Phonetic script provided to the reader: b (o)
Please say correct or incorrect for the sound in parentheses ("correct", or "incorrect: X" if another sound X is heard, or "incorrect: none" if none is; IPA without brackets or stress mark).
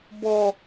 incorrect: ɔ